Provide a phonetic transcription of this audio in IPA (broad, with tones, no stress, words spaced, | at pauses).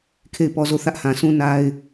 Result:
kʰe˦˨ɪ̯pɔ˦zo˦˨ θä˦ʔhã˨sũ˦ na˦ɪ̯